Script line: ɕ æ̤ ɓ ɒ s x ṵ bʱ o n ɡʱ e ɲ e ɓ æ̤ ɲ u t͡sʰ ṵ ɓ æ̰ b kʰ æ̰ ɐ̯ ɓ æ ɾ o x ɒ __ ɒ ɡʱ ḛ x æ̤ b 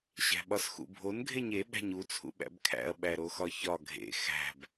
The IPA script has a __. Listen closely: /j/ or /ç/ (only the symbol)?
ç